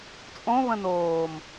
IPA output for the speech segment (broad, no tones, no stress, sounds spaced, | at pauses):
t͡sʼ õ β ə̃ n oː m